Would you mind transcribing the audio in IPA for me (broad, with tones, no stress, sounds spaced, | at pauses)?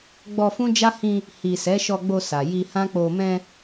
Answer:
ɡ͡b ɔ˧ f ũ˦ d͡ʒ a˦ h ĩ˧ | h i˨ s ɛ˨˦ ʃ ɔ˧ ɡ͡b o˧ s a˨ j i˧ h ã˦ k͡p o˧ m ɛ̃˧